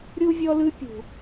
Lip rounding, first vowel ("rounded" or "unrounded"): rounded